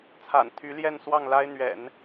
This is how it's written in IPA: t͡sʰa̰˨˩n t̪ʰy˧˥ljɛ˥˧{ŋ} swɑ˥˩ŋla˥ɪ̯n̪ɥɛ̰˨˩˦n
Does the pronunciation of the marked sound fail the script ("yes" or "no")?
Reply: yes